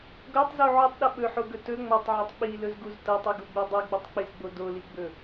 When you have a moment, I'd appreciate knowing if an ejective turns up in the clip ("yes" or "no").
no